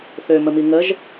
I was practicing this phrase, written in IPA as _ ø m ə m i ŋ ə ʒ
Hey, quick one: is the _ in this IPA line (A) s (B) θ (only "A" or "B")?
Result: B